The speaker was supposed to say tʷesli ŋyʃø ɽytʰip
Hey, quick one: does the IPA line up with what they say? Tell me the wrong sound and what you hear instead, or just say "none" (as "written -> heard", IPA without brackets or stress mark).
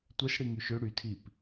l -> ɽ